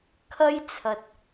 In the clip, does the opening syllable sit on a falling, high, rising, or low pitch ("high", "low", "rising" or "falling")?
high